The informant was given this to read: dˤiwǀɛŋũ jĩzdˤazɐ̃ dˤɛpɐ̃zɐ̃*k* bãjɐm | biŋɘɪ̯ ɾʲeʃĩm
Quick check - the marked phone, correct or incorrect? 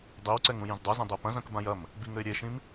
correct